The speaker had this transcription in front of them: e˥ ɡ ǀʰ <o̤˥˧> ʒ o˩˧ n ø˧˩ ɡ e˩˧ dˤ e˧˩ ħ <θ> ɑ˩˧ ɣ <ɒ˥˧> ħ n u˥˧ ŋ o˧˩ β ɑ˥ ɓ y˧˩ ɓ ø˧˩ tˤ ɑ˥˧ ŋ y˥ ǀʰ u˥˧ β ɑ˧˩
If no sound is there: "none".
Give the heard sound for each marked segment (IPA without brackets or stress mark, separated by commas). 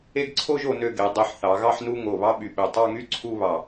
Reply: o˥˧, θ, ɑ˥˧